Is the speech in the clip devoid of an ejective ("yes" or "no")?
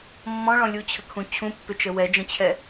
yes